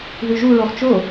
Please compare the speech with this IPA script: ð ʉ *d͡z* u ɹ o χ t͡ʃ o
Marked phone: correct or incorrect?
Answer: incorrect